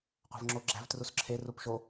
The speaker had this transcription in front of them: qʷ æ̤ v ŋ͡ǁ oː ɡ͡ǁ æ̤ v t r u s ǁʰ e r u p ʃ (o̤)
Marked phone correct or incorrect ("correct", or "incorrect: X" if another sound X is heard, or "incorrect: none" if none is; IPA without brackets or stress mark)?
incorrect: o